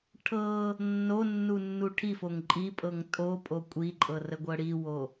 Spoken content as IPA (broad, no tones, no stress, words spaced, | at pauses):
ʈʰɤ | nːo nːunːuʈʰifoŋ ǃʼipʼɤŋ tʼopʼo kʷʼiǃʼɤ rəɡʷɤɽiwo